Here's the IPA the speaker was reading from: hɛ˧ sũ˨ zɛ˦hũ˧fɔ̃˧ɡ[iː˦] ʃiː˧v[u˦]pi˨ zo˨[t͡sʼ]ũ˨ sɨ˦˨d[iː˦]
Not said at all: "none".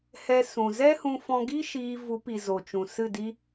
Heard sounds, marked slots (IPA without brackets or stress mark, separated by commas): i˦, u˨˦, t͡ʃ, i˦